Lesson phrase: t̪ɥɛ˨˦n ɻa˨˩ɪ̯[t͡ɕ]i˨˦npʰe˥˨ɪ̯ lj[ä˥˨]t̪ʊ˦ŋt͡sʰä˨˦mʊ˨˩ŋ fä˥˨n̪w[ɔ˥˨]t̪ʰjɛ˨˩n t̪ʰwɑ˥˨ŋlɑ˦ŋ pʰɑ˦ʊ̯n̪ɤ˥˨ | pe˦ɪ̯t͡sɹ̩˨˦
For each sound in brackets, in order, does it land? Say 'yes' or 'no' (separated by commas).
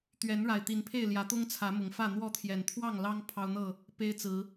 no, no, yes